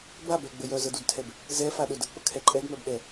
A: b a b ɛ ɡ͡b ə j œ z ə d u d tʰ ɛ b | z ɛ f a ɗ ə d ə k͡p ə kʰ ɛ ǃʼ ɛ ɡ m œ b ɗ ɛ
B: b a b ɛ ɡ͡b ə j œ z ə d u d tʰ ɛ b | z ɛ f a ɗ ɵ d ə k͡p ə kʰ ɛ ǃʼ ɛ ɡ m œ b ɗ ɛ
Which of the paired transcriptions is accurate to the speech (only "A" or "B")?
B